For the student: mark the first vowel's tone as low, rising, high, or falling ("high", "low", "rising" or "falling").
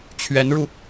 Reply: rising